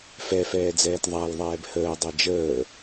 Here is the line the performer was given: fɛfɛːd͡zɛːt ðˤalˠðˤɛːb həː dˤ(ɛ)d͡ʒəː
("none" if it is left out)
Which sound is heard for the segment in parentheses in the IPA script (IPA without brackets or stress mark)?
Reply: ɛ